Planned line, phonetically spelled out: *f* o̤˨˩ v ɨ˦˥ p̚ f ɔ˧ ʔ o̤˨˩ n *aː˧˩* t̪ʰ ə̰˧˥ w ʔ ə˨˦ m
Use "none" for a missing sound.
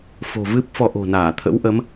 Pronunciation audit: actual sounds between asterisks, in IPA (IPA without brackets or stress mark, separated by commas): f, aː˧˩